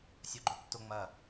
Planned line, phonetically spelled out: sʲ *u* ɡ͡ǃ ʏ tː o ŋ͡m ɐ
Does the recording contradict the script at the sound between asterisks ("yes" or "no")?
yes